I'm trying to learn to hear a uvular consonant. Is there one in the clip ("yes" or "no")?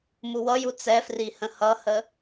no